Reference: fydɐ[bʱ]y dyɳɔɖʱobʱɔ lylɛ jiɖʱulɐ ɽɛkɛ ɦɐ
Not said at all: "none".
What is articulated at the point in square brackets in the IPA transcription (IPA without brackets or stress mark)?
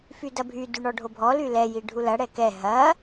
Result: bʱ